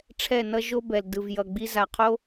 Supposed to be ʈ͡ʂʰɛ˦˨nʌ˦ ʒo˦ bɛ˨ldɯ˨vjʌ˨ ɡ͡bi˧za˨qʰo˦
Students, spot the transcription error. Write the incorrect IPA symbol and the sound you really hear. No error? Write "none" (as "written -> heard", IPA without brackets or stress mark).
none